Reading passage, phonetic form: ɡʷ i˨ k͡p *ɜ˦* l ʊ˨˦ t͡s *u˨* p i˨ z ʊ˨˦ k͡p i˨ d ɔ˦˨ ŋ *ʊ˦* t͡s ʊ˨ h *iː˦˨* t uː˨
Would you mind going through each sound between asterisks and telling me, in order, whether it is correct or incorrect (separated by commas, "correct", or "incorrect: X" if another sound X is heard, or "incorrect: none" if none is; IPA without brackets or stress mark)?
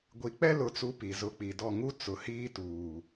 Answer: incorrect: ɛ˦, incorrect: u˨˦, incorrect: u˦, incorrect: iː˦